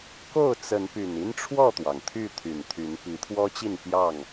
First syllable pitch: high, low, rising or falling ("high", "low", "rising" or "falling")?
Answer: falling